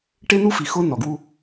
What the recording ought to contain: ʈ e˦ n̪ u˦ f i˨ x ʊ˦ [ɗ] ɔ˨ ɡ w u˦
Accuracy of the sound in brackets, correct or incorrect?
incorrect